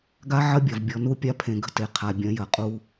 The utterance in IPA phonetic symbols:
ɡa˦ ʕɐ˦bʲɐ˨v bʲɔ˨nu˦˨ pʲa˦pʰẽ˨ ɡə̤˦te˨qʰa˨ bʲɐ̃˨˦ jɐ˨qʼu˦

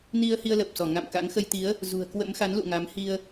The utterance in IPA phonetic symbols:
ni˧ə̯hi˧ə̯ lə˨˩p̚sɔ˧˩ ŋa̰˧˨mka̰˧˥ŋxə˧jt̪i˨˦ə̯ | zṳ˨˩ə̯kwə̰˧˥mxa˨˦nlṵ˧˨ ŋa˨˦mhi˧ə̯

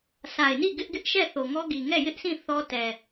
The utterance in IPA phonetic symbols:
sa˨ɪ̯ni˦˨ ɡɪ˦ʔɡɪ˦ʔʃɛ˦˨ θo˨ŋɔ˦ɡi˨ ŋɛ˦˨jɪ˦ʔsʰĩ˦˨ θɔ˦tɛ˨

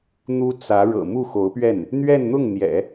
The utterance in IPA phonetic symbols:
n̪u˥t͡sä˧˥ ɻɤ̰˨˩mu˥˩ xo˧˥ʊ̯pɥɛ˥˩n | n̪ɥɛ˥˧nn̪ʊ˥˩ŋn̪jɛ̰˨˩˦

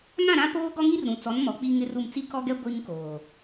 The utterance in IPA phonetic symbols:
ŋã˦˨ɾã˦poː˦ɡɔ˦ ŋi˦rɾũ˨t͡sɔ˨˦n mɔ˨ k͡pi˦ŋɪ˦ru˦˨m t͡si˦kɔ˦ɡɛ˦ ɡʷi˦ŋkoː˨

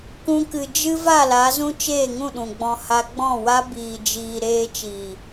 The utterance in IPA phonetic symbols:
kũ˧kɨ˨ d͡ʒɨ˦ va˦˨la˨˦zũ˦ t͡ʃeː˦˨ŋũ˦˨ɗũ˨ɡ͡bɔ̃˧ ha˧ ɡ͡bɔ̃˦˨wa˦ biː˨d͡ʒiː˨ ɾeː˧t͡ʃiː˨

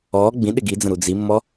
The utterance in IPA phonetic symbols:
ɔ ɡ͡bĩɗɪ ɡid͡zə̃ ɾud͡zimːɔ

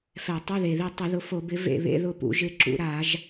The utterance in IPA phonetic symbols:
fɛ˧˩˧ tˤu˧˥˧ðe˨˩ ði˦˨ tˤɪ˧˩˧ðʊ˨˦fo˧˩˧bɪ˨˦ vḛ˦˨βḛ˧˥˧ðʊ˦˨pṵ˧˩˧ ʒɪ˦˨ǁṵ˧˩˧ɾa˧˩˧ʒ

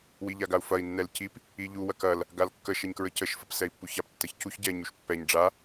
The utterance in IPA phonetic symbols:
wiʎaɡau̯fɐi̯ nːɛlcip | iʎu wɐkɐl | ɡalkːə ʃɛɲkɹəcəʃ fɐpsɛi̯pːuçap tːɐçcuç ɟɛɲ uʃpːɛɲ ɖ͡ʐa

